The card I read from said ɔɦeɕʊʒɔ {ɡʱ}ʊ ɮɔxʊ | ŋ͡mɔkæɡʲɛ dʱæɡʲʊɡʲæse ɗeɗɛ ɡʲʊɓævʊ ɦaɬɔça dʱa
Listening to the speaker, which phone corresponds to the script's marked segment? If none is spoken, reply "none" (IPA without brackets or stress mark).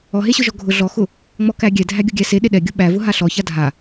ɡʱ